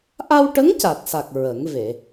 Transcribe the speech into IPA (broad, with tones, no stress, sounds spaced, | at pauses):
ʔ a˧ w ʈ ə˧˥ ŋ c a˨˩ t̚ s a˨˩ k̚ ɹ ə˨˩˦ ŋ v e˨˩˨